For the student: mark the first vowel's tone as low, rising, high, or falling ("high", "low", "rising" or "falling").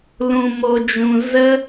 low